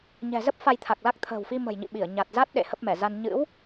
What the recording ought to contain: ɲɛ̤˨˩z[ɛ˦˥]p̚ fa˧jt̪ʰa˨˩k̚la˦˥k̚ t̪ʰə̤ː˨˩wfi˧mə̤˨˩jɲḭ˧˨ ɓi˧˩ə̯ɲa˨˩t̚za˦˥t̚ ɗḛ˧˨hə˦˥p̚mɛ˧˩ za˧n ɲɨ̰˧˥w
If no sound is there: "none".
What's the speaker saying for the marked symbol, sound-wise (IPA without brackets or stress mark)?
ə˦˥